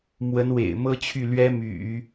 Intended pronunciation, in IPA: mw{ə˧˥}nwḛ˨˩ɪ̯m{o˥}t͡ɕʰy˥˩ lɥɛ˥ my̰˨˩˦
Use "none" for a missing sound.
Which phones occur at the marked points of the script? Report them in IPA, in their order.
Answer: ə˧˥, ɤ˥

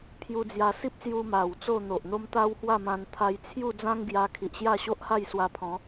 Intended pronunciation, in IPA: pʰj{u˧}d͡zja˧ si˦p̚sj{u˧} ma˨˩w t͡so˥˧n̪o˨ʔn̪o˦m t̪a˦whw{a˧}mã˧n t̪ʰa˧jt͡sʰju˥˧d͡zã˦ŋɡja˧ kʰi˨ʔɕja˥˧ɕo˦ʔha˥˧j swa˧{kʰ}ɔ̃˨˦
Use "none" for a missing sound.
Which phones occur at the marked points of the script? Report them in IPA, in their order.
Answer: u˧, u˧, a˥˧, pʰ

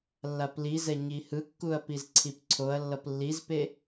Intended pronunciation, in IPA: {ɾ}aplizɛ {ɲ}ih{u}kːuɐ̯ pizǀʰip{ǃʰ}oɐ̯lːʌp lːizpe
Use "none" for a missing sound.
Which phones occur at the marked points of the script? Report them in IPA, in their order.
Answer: lː, ɲ, ɯ, ǀʰ

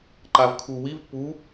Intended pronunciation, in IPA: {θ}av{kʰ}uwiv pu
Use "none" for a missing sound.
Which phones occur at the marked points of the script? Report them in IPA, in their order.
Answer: ǃ, kʰ

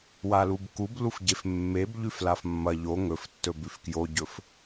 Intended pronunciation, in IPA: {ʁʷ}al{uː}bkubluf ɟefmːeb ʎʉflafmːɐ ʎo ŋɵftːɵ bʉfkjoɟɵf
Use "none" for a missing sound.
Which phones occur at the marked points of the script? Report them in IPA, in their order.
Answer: w, u

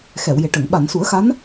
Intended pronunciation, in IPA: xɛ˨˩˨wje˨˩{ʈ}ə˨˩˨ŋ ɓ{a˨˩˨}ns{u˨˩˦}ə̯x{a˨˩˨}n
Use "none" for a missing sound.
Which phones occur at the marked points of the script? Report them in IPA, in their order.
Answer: ʈ, a˨˩˨, u˨˩˦, a˧˥

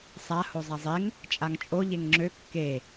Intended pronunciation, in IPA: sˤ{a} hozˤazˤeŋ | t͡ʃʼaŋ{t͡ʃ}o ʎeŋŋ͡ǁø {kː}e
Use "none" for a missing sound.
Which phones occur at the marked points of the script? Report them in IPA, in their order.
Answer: a, t͡ʃʼ, kː

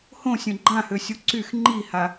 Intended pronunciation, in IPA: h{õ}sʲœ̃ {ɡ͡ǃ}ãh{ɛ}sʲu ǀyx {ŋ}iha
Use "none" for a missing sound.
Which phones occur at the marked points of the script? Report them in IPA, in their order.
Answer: õ, ɡ͡ǃ, ø, ŋ͡ǃ

